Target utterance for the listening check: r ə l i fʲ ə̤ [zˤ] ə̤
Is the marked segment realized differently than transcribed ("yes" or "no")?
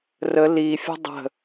yes